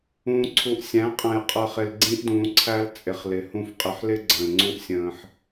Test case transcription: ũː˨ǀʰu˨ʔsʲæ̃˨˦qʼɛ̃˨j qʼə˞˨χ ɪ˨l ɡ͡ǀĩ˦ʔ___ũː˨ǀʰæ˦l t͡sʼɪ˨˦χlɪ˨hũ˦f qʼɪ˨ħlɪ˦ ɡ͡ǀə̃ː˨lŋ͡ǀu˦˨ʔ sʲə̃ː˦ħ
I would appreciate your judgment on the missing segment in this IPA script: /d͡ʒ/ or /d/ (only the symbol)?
d